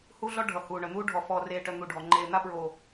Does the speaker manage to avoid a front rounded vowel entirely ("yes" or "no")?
no